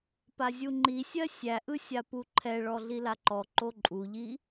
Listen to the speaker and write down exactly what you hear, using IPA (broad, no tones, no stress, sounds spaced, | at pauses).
p a zʲ u ŋ͡ǃ i sʲ ɜ sʲ æ ʔ ɯ sʲ a p u ǃʰ ɛ ɭ ɔ ɮ i l a ǃ ɔ ǃ o ǃʼ u ʎ i